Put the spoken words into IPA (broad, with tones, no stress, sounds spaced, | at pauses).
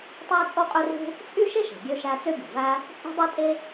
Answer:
tˤ æ˥ t͡sʼ o˥ qʼ ø˥ r ṳ˥ | t͡sʼ y˥ ʃ e˥ ʃ e̤˩ ɡʲ ø˥ ʃ æ˥ t͡s ø˥ ɡʲ o̤˩ v æ˥ | t͡sʼ ṳ˥ dˤ e˥ tʼ e˥